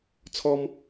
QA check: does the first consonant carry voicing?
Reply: no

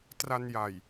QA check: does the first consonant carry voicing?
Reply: no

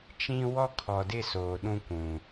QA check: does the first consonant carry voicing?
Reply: no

